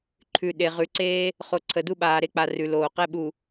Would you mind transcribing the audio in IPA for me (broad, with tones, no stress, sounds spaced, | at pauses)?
ǃʰ ʉ˨ ɗ e˨ ʁ ʉ˨ ǀ eː˦ | χ o˨ ǀʰ ə˨ d u˦ ɓ aː˨ ɾ e˦ k͡p a˨ r ʉ˨ l oː˨ q ɛ˦ ɓ u˨